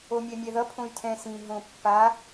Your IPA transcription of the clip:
o mʲ ɛ mʲ ɛ ð ʌ pʰ õ y̯ tʰ ɛ̃ s ĩ ɦ õ pː a

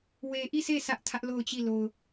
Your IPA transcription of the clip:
w e˨ ʔ i˦˨ s e˦˨ sʰ ä˦ ʔ tʰ ä˦ ʔ l o˦˨ ʊ̯ t͡ɕ i˦˨ l o˨ ʊ̯

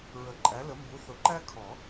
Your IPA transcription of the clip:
ɹ ə˨˩˦ ǃʼ æ˨˥ l ə˨˥ m b u˨˥ θ ʊ˨˩˦ ǃ æ˥ kʰ ɔ˨˩˦

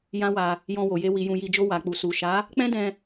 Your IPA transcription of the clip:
j ã˦ w a˧ | j ɔ̃˧ w o˨ j e˧ w i˨ j ũ˨ j i˨ d͡ʒ o˧ w a˨ k͡p u˨ s u˨ ʃ a˨˦ | k͡p ɛ̃˦ d ɛ̃˧

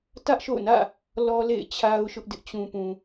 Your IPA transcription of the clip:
t ä˦ ʔ ʃ o̰˦˨ ʊ̯ n ä̰˦˨ | l ɔ˦ l ḛ˦˨ ɪ̯ t͡ɕʰ a˦ ʊ̯ ʃ ʊ˦ ʔ d ɪ˦ ʔ t͡ɕ ũ˨ p ũ˨

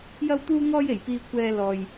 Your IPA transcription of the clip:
j ɐ˧ w t̪ uː˧ ŋ ɔː˧ j e˨˩ j p iː˨ kʷʰ ɛː˨ l ɔː˨ j

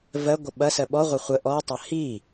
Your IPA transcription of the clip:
v ɜ ɡʷ ə ɓ ɐ s ɜ ɓ ɔ ʁʷ ɐ χʷ ə ʔ ɔ tˤ ɐ h i

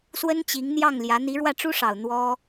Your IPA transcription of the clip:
s w ə˥ n t͡ɕ i˧˥ ŋ n̪ j ɑ˥˩ ŋ l j ä˧˥ n̪ i˧˥ ɻ w ä˥˩ ʈ͡ʂ u˥ ʂ ɑ˨˩ ʊ̯ n̪ w ɔ˥

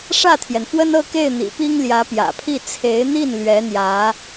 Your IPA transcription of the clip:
ʂ ä˥˩ t̪ʰ j ɛ˩ n f w ə˥ n ɤ˥˧ k e˥˩ ɪ̯ n̪ ḭ˨˩ p i˥ ŋ l j ä˧˥ p j ä̰˨˩ pʰ i˥˩ t͡sʰ e˧˥ ɪ̯ n̪ i˥˩ n l ɥ ɛ˧˥ n̪ j ä˧˥

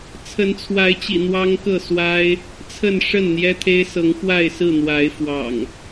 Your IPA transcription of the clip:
t͡sʰ ə˨˦ n t͡sʰ w a˨˦ ɪ̯ t͡ɕ ḭ˨˩ n̪ w ɑ˦ ŋ k ɤ˥˨ s w a˦ ɪ̯ | t͡sʰ ə˥˨ n ʂ ə˥˨ n n̪ j ɛ˦ t̪ʰ e˦ ɪ̯ s ɤ˨˦ ŋ x w a˥˨ ɪ̯ s ɹ̩˥˨ n̪ w a˨˦ ɪ̯ f w ɑ̰˨˩ ŋ

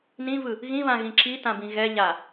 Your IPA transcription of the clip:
n ĩ v ɯ | ɣ ĩ β ã ɣ ĩ ǁ i t ã b ĩ ɣ ɛ ʎ a

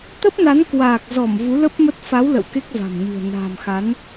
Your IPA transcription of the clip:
t̪ ə˦˥ p̚ n a˨˦ n k w aː˨˩ k̚ z ɔ˧˩ m v u˨˦ l ə˦˥ p̚ m ə˦˥ t̚ f a˨˦ w l ə̰˧˨ w k e˦˥ k̚ v a̤˨˩ m ɲ ɨ̤˨˩ ə̯ n a̤ː˨˩ m x a˨˦ n

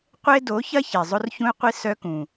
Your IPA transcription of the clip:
qʷ e˦ d o˨˦ ç ɐ˦ ç e˨ zˤ ʊ˦ r ç ũ˦ y̯ qʷ i˦ s œ˦ k ũ˨

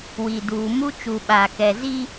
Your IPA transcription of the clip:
w i˨ d uː˨ m u˦ t͡ʃ u˨ ɓ aː˨ k ɛ˨ z i˦

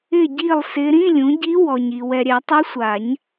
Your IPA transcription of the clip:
ɪ˥˨ ɟ i˥˨ lˠ s ɪ˧˥ ɾ ĩ˧˥˧ lʲ ũ˩˥ ɟ i˧˥ w ɔ˨ ɲ i˨ w ɛ˨ ɾʲ ɛ˨˩˦ tˤ u˧˥ sʷ a˨˩˦ ɲ

